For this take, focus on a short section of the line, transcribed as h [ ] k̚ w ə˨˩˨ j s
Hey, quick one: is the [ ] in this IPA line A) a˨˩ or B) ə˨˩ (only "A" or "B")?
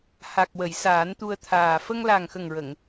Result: A